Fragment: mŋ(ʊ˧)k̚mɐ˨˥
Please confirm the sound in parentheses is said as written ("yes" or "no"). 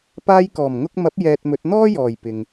yes